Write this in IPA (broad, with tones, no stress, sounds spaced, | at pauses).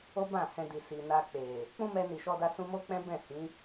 o˦ b ã˦˨ h ɛ̃˧ d i˨ s i˨ n a˧ k͡p e˨ | k͡p ũ˦ m ɛ˧ n i˨ ʃ ɔ˧ d a˧ s ũ˧ m o˦ k͡p ɛ̃˦ b ɛ̃˦˨ h ĩ˨˦